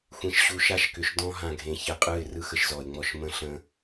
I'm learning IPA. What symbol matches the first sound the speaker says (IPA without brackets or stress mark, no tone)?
xʷ